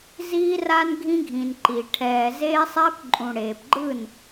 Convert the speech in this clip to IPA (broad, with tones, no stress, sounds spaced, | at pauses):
z iː˦ r a˦ n ɡʱ ĩ˦ ɡʱ ĩ˨ n ǃ i˨ ʈʰ ɛː˨ z eː˦ sˤ ɛː˦ p ǃʼ ũ˨ ɽ eː˨ p ɡ͡ǃ ɯ˦˨ n